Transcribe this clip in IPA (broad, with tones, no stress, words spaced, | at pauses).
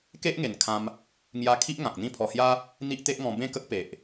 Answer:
ke˦ʔŋe˨˩nkʰã˧m | ŋja˧kʰi˦ʔ ŋã˨k̚n̪ĩ˥˧pʰɔ˧hja˦ | n̪i˦ʔt̪e˦ʔŋɔ̃˧ bẽ˥˧kə˦k̚pe˨ʔ